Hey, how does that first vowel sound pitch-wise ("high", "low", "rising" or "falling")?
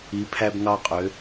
rising